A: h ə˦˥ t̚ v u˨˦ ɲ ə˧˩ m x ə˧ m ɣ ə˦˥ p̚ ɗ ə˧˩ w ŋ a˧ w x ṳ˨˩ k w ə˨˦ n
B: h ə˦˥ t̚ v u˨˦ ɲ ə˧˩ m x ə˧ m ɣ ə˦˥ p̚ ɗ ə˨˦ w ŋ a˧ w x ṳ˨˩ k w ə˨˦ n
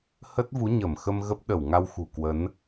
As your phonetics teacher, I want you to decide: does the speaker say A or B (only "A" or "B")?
A